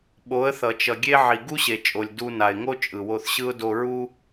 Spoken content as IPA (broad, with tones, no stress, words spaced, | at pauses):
ɓo˨˦ə̯θʌ˨t͡ʃʌ˨ɡʲe˦ ʕi˨ɡu˦ɕe˨t͡ʃʼo˨lʲ du˧na˨ɪ̯ŋo˦ t͡ʃʼɯ˨wo˧θɕɯ˦ʊ̯ do˧ɹu˦